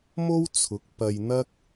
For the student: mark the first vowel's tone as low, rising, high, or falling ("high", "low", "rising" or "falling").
high